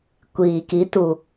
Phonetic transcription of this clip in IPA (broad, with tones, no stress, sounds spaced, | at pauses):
kʷ iː˨ k i˨˦ t u˨